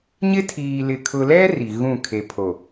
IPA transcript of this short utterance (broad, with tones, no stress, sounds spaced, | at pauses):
ɲ ɪ˦ tʰ iː˨ l ɪ˨ kʰ ʊ˨ l ɛ˦ r i˨ ɣ ũ˦˨ kʰ e˨ pʰ o˨